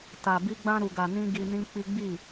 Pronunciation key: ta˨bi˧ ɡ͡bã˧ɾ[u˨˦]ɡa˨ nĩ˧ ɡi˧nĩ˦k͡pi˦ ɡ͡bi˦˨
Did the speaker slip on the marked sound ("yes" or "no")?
yes